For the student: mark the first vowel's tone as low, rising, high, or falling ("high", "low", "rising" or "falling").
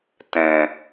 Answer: low